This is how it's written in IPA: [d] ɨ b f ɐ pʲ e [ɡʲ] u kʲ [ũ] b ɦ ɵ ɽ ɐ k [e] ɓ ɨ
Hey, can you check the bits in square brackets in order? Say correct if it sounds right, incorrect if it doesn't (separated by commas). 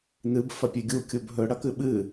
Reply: incorrect, correct, incorrect, incorrect